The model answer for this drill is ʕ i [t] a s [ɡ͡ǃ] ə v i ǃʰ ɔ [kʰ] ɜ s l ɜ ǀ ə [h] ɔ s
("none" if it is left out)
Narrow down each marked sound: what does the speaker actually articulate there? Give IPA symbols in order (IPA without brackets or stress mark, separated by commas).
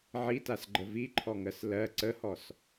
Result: t, ɡ͡ǃ, ŋ, h